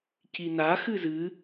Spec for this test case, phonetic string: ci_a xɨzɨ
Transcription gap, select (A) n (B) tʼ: A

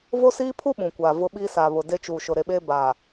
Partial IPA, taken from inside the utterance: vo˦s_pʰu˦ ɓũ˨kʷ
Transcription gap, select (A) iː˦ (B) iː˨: A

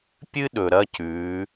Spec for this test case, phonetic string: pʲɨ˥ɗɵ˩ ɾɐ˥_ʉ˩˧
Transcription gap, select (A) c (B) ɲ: A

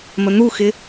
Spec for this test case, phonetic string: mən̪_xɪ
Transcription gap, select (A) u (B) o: A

